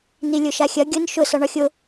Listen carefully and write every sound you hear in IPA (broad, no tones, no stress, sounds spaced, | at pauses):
n i lʲ ʊ ʃ a xʲ ɐ ɡʲ ʊ n ʃ ʊ s ɒ ɳ ɒ xʲ ʊ